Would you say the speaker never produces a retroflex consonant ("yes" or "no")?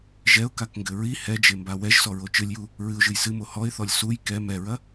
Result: yes